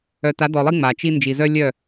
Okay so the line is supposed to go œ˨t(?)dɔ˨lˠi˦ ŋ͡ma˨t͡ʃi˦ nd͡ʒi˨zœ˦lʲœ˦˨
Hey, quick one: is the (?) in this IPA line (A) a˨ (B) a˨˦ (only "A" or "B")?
B